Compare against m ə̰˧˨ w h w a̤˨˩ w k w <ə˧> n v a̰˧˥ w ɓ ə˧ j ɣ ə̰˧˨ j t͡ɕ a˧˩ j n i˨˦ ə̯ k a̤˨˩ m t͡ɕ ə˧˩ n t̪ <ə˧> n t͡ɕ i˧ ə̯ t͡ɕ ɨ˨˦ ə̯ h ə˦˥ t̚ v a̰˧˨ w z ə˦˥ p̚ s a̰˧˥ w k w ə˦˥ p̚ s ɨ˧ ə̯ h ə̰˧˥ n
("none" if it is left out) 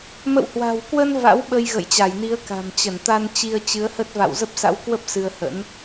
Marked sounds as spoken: ə˧, a˧

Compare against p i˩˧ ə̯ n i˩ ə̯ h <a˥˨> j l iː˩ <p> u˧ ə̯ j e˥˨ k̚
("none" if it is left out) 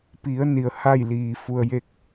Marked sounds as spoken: a˥˨, f

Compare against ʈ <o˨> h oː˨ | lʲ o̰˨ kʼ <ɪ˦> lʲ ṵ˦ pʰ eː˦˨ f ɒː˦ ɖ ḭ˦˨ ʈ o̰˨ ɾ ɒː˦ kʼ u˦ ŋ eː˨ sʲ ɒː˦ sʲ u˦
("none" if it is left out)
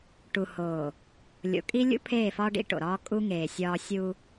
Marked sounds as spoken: u˨, i˦

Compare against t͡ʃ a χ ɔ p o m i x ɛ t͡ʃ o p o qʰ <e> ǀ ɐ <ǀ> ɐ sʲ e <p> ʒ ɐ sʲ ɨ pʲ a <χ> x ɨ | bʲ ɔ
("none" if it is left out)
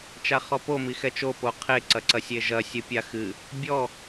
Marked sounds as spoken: e, ǀ, none, none

